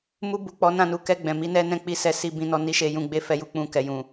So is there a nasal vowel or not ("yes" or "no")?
yes